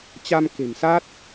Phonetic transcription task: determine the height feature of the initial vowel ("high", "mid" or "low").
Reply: low